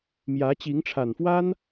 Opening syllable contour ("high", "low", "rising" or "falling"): rising